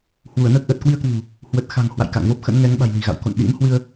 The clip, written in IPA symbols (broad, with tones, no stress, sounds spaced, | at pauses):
h w u˧˩ ə̯ n əː˦˥ k̚ ʔ əː˨˩ t̚ k w i˧ ə̯ k w ṳ˨˩ | h w ə˨˩ t̚ x a̤˨˩ ŋ h w a̰˧˨ j k a̰˧˨ ŋ v o˦˥ p̚ x ə̰˧˥ n ŋ ɛ˨˦ ŋ ɓ a̤˨˩ j l i̤˨˩ ɣ a̰˧˨ w k o̰˧˨ n ɗ ḭ˧˥ m h w ɨ˧ ə̯